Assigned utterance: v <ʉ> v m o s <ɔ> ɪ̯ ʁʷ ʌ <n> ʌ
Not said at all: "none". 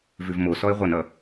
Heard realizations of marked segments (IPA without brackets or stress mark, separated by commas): ʉ, ɔ, n